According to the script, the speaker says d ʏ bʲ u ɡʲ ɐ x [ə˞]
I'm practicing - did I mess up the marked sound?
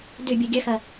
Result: yes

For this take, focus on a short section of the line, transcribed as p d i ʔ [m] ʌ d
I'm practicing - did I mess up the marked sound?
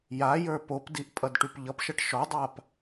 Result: yes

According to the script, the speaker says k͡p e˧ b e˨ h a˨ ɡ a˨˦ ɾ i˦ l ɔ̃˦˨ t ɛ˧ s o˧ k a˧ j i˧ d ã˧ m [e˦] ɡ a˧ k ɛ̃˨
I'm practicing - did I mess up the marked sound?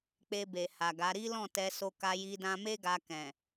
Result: no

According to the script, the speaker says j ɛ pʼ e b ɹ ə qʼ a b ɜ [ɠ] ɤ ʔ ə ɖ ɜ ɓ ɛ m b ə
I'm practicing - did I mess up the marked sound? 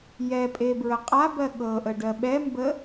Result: no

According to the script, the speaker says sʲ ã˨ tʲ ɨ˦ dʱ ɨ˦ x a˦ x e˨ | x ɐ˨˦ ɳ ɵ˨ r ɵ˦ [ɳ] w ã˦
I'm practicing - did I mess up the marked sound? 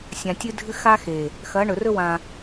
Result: yes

